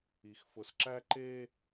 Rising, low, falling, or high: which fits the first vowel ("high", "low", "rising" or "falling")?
low